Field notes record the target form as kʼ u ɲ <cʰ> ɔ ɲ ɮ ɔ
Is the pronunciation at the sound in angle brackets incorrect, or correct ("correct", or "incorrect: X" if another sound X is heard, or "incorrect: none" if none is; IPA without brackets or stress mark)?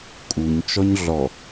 incorrect: t͡ʃ